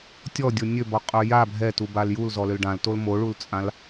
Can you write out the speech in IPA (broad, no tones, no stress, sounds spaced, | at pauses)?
tʲ ɔ dʲ o nʲ ø b ɔ qʼ ø j a bʱ ɛ t u b a l j u l z ɔ l ø l ɖ ã l t o l m o ɭ u l t͡sʼ ã l